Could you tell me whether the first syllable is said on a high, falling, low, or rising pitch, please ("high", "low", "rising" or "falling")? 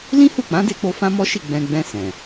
high